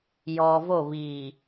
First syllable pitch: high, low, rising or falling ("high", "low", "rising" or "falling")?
low